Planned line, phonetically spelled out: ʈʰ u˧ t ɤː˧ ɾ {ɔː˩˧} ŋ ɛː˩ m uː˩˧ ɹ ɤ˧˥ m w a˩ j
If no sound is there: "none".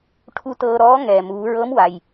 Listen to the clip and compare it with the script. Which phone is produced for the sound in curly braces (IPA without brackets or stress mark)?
ɔː˧˥